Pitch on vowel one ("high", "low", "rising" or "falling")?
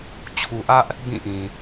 low